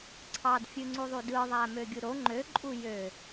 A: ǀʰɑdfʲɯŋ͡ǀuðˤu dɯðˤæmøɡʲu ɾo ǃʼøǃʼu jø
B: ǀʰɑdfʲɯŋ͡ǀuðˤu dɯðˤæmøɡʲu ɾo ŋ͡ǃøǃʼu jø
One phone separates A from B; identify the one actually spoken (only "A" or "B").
B